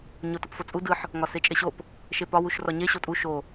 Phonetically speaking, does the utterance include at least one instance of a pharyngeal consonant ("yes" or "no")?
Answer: yes